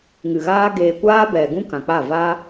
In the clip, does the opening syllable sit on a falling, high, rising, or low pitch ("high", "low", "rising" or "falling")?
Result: low